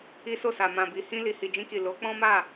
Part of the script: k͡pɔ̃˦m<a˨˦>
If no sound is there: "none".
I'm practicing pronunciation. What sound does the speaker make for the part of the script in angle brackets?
a˦˨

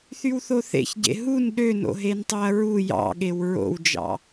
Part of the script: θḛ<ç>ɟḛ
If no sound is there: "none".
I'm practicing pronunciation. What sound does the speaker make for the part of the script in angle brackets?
ç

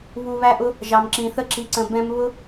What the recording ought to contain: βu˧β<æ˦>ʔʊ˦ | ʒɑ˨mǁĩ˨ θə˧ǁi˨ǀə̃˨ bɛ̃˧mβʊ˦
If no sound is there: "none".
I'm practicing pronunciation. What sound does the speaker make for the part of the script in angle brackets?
æ˦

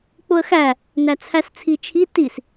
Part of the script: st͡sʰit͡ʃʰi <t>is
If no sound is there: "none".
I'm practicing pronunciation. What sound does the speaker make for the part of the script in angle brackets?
t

